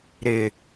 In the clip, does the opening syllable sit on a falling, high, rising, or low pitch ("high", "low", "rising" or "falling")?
low